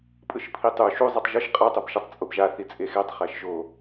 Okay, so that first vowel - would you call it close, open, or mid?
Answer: close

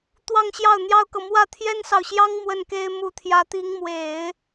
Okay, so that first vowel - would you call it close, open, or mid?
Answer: open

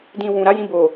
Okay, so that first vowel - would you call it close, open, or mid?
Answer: close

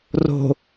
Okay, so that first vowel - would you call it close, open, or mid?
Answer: mid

